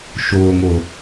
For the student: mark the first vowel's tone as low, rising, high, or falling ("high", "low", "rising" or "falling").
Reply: low